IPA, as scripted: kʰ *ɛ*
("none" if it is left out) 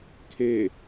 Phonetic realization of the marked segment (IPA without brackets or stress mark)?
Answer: e